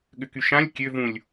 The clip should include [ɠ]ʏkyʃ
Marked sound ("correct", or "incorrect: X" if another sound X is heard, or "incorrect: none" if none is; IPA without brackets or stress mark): correct